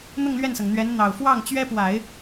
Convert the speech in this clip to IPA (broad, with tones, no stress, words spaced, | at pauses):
n̪ʊ˥˧ŋ lɥɛ˥˩nsɤ˩ŋ n̪ɥɛ˧˥nn̪ɑ˨˩ʊ̯ fwɑ˥˩ŋt͡ɕɥɛ˥pwa˨˩˦ɪ̯